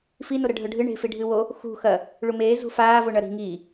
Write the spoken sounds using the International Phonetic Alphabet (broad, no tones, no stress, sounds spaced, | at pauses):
f i n o ɾ ɐ ɖʱ ɵ ɖʱ ɨ ɳ e̤ f i ɖʱ ɨ w o | x ṳ x ɐ | ɭ u m eː z ṳ f aː v o ɳ ɐ ɾ i̤ ŋ iː